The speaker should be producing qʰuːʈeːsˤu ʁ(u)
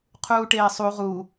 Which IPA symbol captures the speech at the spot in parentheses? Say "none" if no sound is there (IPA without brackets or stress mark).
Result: u